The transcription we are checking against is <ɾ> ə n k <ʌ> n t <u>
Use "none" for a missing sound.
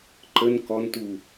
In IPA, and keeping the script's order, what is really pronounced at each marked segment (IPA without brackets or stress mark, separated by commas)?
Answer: ǃ, ɔ, u